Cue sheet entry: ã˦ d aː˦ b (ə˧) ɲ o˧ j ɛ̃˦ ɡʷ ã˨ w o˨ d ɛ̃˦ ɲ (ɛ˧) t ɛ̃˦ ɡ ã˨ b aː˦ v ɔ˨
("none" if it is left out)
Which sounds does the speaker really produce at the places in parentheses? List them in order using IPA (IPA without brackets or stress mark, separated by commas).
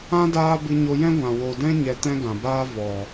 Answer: ɨ˧, ɛ˧